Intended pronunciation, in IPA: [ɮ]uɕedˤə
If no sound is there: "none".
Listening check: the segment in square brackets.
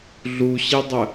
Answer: ɮ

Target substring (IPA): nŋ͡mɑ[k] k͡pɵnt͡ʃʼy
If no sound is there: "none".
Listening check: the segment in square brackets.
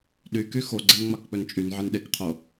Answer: k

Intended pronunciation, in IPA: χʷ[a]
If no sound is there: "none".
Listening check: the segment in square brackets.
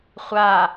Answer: a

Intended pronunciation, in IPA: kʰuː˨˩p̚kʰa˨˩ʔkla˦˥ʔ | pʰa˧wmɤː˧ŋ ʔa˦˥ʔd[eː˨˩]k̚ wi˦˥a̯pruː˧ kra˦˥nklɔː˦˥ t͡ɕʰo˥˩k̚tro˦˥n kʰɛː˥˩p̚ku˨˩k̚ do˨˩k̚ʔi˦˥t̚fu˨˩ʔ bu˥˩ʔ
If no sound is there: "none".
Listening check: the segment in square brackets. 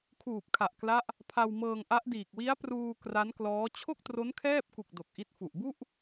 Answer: iː˨˩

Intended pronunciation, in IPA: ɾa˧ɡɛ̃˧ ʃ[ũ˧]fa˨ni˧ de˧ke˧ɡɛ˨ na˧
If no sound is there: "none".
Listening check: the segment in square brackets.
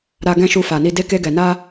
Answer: u˧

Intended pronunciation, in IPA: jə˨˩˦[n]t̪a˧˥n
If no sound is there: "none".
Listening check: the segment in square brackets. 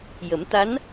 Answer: m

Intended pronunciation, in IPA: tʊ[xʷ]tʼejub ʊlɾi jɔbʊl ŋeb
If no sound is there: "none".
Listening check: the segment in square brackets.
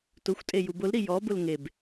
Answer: xʷ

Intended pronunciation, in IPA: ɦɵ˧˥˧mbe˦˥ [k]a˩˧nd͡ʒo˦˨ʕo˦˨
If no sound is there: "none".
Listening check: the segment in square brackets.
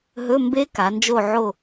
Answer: k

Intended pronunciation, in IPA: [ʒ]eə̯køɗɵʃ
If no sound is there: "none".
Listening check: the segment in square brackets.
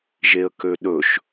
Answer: ʒ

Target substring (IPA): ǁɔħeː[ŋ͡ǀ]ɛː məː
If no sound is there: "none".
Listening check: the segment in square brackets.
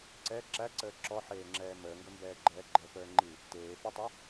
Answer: ŋ͡ǁ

